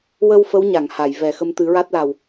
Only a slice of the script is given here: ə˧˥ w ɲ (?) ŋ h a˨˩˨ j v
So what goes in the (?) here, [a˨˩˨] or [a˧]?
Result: a˨˩˨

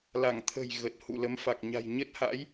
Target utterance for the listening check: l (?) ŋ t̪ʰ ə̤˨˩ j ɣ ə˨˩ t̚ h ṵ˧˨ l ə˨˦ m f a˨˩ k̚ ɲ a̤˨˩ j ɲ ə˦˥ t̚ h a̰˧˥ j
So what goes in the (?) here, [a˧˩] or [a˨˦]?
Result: a˧˩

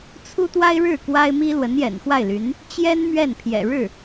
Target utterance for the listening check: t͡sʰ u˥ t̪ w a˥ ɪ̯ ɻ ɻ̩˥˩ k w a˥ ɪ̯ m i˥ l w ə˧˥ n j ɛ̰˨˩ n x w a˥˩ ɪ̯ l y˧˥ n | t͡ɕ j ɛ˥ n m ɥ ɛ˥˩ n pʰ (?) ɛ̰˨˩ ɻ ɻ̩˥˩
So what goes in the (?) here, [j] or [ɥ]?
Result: j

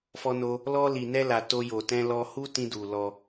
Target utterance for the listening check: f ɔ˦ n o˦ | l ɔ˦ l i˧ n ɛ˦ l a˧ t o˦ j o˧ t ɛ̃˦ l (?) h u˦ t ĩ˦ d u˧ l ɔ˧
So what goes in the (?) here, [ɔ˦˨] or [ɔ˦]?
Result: ɔ˦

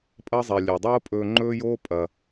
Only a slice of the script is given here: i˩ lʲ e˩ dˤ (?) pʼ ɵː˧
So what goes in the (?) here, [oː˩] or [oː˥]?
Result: oː˥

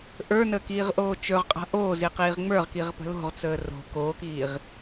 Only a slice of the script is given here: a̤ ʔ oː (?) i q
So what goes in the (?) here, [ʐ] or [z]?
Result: z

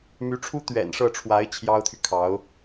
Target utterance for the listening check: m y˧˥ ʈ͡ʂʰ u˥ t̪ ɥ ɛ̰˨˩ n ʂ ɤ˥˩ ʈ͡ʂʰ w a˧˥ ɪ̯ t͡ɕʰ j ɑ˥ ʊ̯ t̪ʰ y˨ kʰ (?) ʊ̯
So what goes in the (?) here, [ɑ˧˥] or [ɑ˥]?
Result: ɑ˧˥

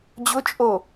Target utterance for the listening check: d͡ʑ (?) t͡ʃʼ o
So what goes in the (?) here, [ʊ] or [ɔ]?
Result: ʊ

